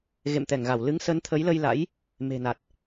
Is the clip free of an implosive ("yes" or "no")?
yes